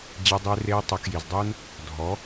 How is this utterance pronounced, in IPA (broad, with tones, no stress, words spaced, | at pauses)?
d͡ʑe˧dˤe˧ re˧ tˤə˨˦kji˨zdˤu˦n | dʱɔ˨˦